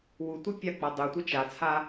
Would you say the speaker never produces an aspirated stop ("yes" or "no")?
no